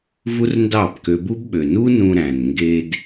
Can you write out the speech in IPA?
v u˦ r n d ɑ˦˨ b k ø˧ b u˦ b ɓ ø˨ n u˦ n ũ˧ ɾ æ̃˨ n ŋ ɡ e˧ d

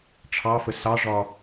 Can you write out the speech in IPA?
ʈ͡ʂʰ ɑ f ə s ɑ ʐ ɒ

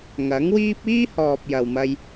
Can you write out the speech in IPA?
ŋ ɐ˨˥ ŋ w iː˥ p̚ iː˥ h ɔː˨ p̚ j ɐ˨ w m ɐ˧ j

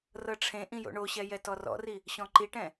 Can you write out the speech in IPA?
r ɤ ʈ͡ʂʰ ẽ ʔ ĩ j o̰ ɳ o ɕ ɛ j ɛ t ɔ r ɔ̰ r i | ɕ ɔ̃ ǃ i ʈ ɛ̃

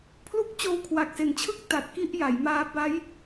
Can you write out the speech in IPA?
pʰ l u˥˩ k̚ t͡ɕ oː˦˥ w kʰ w a˨˩ k̚ s e˨˩ n t͡ɕʰ ɯ˥˩ k̚ t a˨˩ t̚ k i˥˩ ʔ j a˩˦ j m aː˦˥ b a˦˥ j

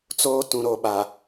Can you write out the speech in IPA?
t͡s oː˦ t ũ˨ ɾ o˨ ɓ a˨

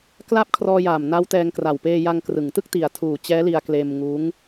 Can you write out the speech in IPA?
k l a˥˩ p̚ kʰ r ɔː˧ j aː˨˩ m n a˦˥ w t ɛː˧ ŋ k r a˨˩ w p eː˧ j a˧ ŋ k r ɯ˩˦ ŋ t ɯ˥˩ k̚ t i˨˩ a̯ tʰ uː˨˩ t͡ɕ ɛː˦˥ l i˧ a̯ k l eː˧ m ŋ uː˦˥ ŋ

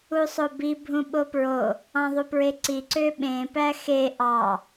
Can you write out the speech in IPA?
u sˤ o b i bʱ ũ ɓ o p ɹ o | ɑ̃ ðˤ u p ɹ e ǀ i ǀ ø ɓ ẽ p æ x e ʔ ɑ

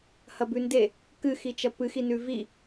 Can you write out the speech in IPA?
h ɐ b ʉ n d e | k ɨ x i t͡ʃ ɐ p ɨ x i n ʉ v i

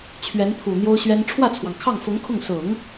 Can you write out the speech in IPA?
t͡ɕʰ ɥ ɛ˧˥ n pʰ u˨˩ n̪ j o˥ ʊ̯ ɕ ɥ ɛ˥ n ʈ͡ʂʰ w ä˥˩ t͡sʰ w ɑ˩ ŋ kʰ ɑ˥˩ ŋ f ʊ˧˥ ŋ kʰ ʊ˥˩ ŋ s ʊ˨˩˦ ŋ

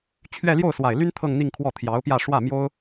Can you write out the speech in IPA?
t͡ɕʰ ɥ ɛ˥˧ l j o˥˩ ʊ̯ s w a˨˩ ɪ̯ l y˥ n t̪ʰ ɤ˥˧ ŋ n̪ i˥˧ ŋ kʰ w ɔ˥˩ t̪ʰ j ɑ˧˥ ʊ̯ p j ä˥˧ ʂ w ä˥˩ m j o˥ ʊ̯

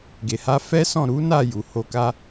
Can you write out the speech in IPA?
ɡ e˨ h a˧ f ɛ˦ s ɔ̃˦˨ ɾ u˨˦ n a˦˨ j u˨ h o˧ k a˦

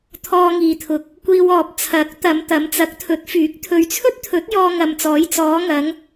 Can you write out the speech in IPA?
t̪ʰ ɔː˧ ŋ iː˨ t̪ʰ ʊ˨ k̚ | kʷ iː˧ w ɔː˨ p̚ t͡sʰ ɐ˨˥ k̚ t̪ ɐ˨˧ m t̪ ɐ˨˧ m t͡s ɐ˨˥ k̚ t̪ʰ ɵ˨˥ t̚ f yː˨˥ k̚ t̪ʰ ɵ˨ ɥ t͡sʰ ɵ˥ t̚ t̪ʰ ɵ˨˥ t̚ j ɔː˧ ŋ ɐ˨ m t͡s ɔː˨˧ j t͡s ɔː˨˧ ŋ ɐ˨˧ ŋ

